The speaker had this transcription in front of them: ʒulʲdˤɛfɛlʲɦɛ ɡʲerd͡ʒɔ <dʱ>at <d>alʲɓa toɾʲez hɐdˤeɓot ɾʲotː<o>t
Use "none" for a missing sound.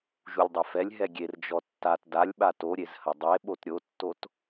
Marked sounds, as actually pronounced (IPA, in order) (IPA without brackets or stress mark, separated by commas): tː, d, o